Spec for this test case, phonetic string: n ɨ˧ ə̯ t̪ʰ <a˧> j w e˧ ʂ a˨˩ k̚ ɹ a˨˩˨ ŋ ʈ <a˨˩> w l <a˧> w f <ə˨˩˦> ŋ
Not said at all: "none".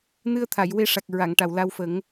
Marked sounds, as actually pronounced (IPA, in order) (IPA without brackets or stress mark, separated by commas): a˨˩˨, a˨˩, a˧, ə˨˩˦